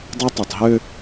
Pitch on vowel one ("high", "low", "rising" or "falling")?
high